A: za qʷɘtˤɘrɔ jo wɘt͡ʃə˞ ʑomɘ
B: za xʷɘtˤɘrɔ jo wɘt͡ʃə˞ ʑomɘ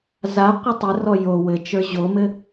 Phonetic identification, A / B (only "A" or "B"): A